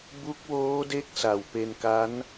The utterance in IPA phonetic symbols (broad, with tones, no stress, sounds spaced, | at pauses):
b u˦˥ k̚ w oː˦˥ d e˦˥ k̚ s a˨˩ w p e˧ n k a˦˥ n